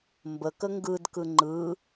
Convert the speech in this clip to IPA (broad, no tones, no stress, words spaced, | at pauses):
mbəkə ŋɡɯdkɯ ŋ͡ǃɯ